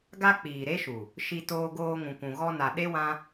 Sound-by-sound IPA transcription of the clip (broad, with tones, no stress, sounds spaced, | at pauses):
ɡ a˦ k͡p iː˨ ɾ e˦ ʃ u˨ | ʃ i˧ t oː˧ ɡ oː˧ ŋ ũ˨ kʷ ũ˨ ɣ ɔ˧ n a˨ ɗ e˦ w ã˦